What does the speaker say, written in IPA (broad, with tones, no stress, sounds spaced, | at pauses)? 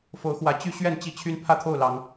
f o˨˦ ʊ̯ x w ä˨˦ t͡ɕ y˦ ɕ ɥ ɛ˥˨ n t͡ɕ i˥˨ t͡ɕʰ y˦ n pʰ ä˥˨ t̪ʰ o˥˨ ʊ̯ l ɑ˨˦ ŋ